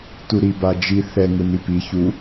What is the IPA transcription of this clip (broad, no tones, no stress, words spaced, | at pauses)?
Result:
tuɾi bad͡ʒi θɛ ŋɯnipi çu